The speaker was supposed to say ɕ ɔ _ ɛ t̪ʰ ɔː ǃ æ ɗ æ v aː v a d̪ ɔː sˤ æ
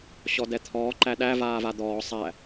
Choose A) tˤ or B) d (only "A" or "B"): B